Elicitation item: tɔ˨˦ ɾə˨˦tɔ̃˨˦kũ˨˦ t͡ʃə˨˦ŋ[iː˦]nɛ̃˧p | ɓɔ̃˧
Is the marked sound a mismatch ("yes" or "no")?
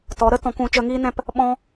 no